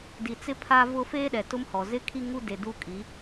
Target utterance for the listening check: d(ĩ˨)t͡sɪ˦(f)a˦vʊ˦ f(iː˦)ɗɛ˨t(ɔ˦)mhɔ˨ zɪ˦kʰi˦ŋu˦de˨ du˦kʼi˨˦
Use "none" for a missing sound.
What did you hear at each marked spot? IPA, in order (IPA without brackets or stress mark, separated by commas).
i˨, pʰ, eː˦, ʊ˦